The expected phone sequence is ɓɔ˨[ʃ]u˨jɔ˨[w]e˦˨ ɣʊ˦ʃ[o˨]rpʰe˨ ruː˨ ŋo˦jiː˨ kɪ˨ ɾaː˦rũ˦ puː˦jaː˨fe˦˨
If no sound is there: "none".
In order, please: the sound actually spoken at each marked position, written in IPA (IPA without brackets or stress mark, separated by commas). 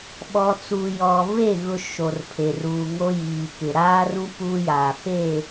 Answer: t͡s, v, o˨